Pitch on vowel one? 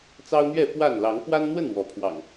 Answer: high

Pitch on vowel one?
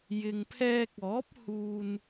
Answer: low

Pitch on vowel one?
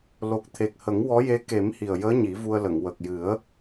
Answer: low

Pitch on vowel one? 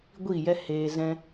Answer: falling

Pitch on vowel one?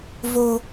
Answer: low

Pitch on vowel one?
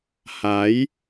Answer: rising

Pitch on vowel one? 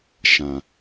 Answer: low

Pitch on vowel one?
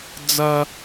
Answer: high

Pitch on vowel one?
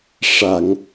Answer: low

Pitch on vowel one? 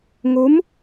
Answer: rising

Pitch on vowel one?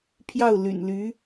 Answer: falling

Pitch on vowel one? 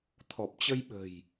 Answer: low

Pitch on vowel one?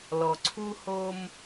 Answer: low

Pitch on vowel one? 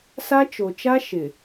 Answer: high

